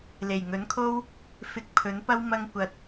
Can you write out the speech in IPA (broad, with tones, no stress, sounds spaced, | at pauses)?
l e˨˩ j ŋ ɵ˨˥ n kʰ o˥ w | f ɪ˧ k̚ pʰ ɵ˨˥ n p ɐ˥ w m ɐ˥ ŋ kʷ ɐ˧ t̚